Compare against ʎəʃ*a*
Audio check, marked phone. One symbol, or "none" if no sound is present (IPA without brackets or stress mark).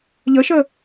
ə